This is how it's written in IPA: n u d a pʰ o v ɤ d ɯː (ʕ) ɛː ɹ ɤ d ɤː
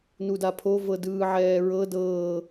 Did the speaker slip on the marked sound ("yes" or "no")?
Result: no